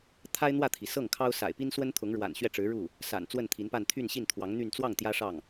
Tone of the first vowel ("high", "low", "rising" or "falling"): high